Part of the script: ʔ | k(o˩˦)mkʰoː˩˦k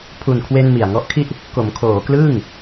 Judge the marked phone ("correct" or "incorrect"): correct